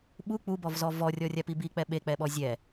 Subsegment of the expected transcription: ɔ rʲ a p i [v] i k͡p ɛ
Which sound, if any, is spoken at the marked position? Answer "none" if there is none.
b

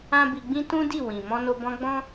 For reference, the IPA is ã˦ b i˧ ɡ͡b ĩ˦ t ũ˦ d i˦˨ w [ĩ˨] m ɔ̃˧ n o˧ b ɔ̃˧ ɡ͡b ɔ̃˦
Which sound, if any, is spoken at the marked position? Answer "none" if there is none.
ĩ˨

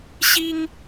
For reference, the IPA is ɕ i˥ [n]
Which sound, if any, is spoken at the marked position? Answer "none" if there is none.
ŋ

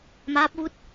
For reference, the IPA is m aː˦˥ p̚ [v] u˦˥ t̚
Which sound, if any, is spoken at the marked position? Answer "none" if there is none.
v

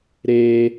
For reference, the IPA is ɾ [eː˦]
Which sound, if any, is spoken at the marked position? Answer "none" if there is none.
eː˦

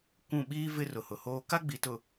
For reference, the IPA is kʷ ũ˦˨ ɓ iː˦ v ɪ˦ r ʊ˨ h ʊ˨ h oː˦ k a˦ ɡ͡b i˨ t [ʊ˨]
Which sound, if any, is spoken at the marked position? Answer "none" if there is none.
ʊ˨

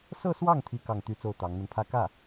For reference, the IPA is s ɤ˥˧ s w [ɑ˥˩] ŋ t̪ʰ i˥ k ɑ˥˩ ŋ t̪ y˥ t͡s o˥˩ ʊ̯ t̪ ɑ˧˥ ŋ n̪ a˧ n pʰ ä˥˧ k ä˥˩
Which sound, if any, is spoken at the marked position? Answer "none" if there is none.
ɑ˥˩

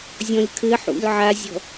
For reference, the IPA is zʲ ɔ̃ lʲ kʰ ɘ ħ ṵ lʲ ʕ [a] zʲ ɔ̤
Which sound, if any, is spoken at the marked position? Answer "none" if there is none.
a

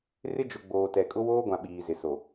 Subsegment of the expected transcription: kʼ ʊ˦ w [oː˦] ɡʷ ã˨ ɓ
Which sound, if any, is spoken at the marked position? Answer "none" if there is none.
oː˦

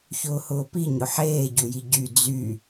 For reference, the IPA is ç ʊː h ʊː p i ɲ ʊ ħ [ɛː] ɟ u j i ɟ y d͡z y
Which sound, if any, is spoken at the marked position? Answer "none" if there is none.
eː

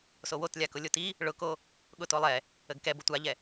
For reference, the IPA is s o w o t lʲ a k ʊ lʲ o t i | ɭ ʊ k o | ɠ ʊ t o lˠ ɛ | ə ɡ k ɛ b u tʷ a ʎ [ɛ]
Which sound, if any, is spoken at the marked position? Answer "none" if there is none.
ɛ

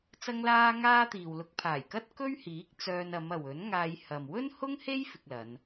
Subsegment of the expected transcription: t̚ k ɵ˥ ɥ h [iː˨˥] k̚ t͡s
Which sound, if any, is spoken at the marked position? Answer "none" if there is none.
iː˨˥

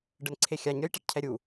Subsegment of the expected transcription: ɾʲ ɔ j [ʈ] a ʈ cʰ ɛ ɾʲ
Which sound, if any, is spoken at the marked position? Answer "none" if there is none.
ʈ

